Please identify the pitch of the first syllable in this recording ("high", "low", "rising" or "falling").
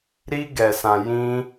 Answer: high